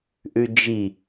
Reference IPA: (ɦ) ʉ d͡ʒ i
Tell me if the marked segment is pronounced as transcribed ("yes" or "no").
no